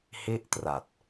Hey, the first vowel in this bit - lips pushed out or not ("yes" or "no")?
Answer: no